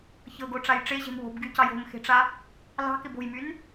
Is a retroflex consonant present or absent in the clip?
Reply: present